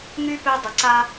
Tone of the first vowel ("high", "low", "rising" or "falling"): high